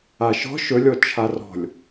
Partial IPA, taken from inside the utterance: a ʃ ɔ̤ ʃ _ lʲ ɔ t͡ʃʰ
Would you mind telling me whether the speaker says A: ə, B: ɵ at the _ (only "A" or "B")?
B